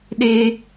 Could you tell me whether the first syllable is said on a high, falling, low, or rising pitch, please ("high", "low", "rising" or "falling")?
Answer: high